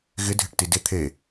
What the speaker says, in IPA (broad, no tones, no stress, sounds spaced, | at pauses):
ɣ ɪ dʱ ɪ ʈ t i d ɪ t̪ʰ e